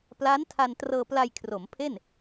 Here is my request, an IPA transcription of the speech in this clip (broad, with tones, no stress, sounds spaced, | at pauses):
p l a˦˥ n tʰ a˧ n t r ɤː˧ p l a˧ j kʰ r o˩˦ m pʰ e˥˩ n